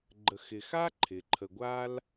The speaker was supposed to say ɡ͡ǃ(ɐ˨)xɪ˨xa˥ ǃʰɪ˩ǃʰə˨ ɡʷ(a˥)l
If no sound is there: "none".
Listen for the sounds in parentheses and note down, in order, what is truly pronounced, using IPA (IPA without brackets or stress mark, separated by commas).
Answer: ə˨, a˥